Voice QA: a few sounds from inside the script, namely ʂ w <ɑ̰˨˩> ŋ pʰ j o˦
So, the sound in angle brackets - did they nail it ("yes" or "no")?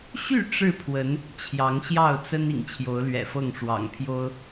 yes